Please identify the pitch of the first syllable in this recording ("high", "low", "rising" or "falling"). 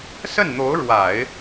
falling